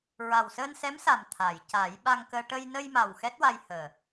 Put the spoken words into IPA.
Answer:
ɹ a˨˩ w s əː˧ n s ɛ˧˥ m s a˨˩ m t̪ʰ a˨˩˨ j c a˨˩˦ j ɓ a˧ ŋ k əː˧ ʈ ə˧ j n ə˧ j m a˨˩ w x ɛ˦˥ t̚ w a˧ j h əː˨˩

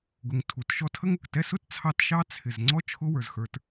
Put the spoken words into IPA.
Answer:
ɡ ʊ˨ ŋ tʰ u˩ t ʃ ɔ˦ tʰ ə˥ ŋ ʊ˩ k t ɛ˦ s ʊ˥ t t͡sʰ ɑ˦ t ʃ ɑ˥ t͡sʰ ɪ˩ z ŋ͡ǀ ɔ˥ t͡ʃʰ ʊ˦ w ə˞˩ z x ə˞˨ t

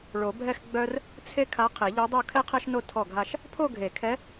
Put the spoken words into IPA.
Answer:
ɭ o˨˩˦ bʱ ɛ˥˧ x ɡ͡b œ˥ r | t͡sʰ e˥ kʰ a˧˥ qʰ e˨˩˦ ʎ o˧˥ dˤ o˥˧ kʰ ɛ˥ qʰ ɛ˥ ʃ n o˥˧ tʰ ɔ˥˩ ɡʱ a˥˧ ʃ | pʰ o˥˧ ɡʱ e˨˩˦ kʰ ɛ˧˥

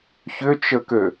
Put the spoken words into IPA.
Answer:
ç ʏ t͡ʃ ə k ø

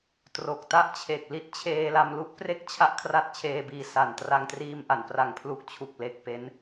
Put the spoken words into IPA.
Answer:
t r o˨˩ k̚ t a˥˩ ʔ t͡ɕʰ e˨˩ k̚ l i˦˥ t̚ t͡ɕʰ eː˧ l a˧ m l u˥˩ ʔ p r e˥˩ k̚ t͡ɕʰ a˦˥ ʔ kʰ r a˦˥ t̚ t͡ɕʰ eː˧ b iː˧ s a˨˩ n t r a˧ ŋ t r iː˧ m ʔ a˩˦ n p r a˩˦ ŋ pʰ l u˨˩ k̚ t͡ɕʰ u˨˩ k̚ l e˨˩ k̚ p e˦˥ n

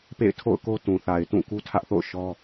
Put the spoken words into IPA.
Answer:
p ḛ˦˨ ɪ̯ tʰ o̰˦˨ ʊ̯ k o˦ t ũ˨ θ a˨ ɪ̯ t ũ˦˨ k u˦ tʰ ä˦ ʔ θ o̰˦˨ ʊ̯ ʃ ɔ˦

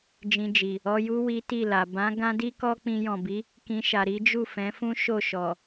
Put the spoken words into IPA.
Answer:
d͡ʒ ĩ˧ d͡ʒ i˨ | ɔ˧ j u˦ w i˦ t i˦˨ l a˨ b ã˨˦ ɡ ã˦ d i˦ k ɔ˦ k͡p ĩ˧ j ɔ̃˨ b i˨˦ | k ĩ˧ ʃ a˨ ɾ i˨˦ d͡ʒ u˦˨ f ɛ̃˨˦ f ũ˦ ʃ o˦˨ ʃ ɔ˨

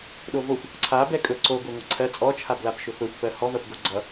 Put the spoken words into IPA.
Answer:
ɗ o v o xʷ | ǀʰ a b ɛ kʼ ɵ ǀ o ɡʷ ɛ ŋʷ ɘ ǀʰ ɜ t͡sʼ ɔ t͡ʃʰ a b l a b ʃ ɵ f ɵ xʷ f ɜ h ɔ v ɜ p ɡ o ɡ͡ǀ ʌ

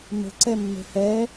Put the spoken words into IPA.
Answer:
m ə̤ ǀ ɛ mː e̤ h ɛ

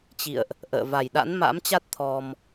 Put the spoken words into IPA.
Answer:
t͡ɕ ḭ˧˨ ə̯ ʔ | ʔ ə̰ː˧˨ v a˨˩ j ɗ a̰˧˥ n m a̰˧˥ m t͡ɕ a˦˥ t̚ t̪ʰ ɔ˧ m

